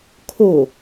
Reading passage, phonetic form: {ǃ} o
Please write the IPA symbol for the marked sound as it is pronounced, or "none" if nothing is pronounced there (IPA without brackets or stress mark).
kʰ